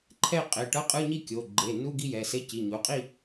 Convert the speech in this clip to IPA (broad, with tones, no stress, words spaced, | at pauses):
ǃʰɛ˥˧ qʼe˩˧˩ʈʌ˧˥˧qʼɯ˧˥˧ɲi˥˧ kʲo˩˧˩ ɡ͡ǃe˩˧˩nu˧˥˧ɡ i˥˧jɛ˩˧˩se˧˥˧ ci˩˧˩ɲu˩˧˩qʼi˥˧